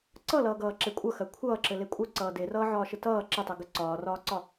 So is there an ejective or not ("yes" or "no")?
yes